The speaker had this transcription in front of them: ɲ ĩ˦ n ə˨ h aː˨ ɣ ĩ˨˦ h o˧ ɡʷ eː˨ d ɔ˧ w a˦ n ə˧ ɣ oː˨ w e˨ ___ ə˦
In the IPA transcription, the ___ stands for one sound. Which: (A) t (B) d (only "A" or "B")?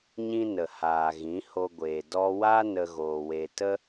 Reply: A